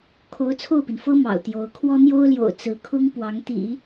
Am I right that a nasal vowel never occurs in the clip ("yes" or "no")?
yes